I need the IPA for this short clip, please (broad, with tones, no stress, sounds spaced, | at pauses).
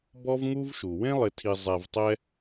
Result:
b ɔ˥ v ŋ u˥ v ʃ u˩ w ẽ˥ lˠ ɪ˨ tʰ i˨ zˤ ɛ˨ v tˤ ɛ˦